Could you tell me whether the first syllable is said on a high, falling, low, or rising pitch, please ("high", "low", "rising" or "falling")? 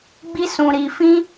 high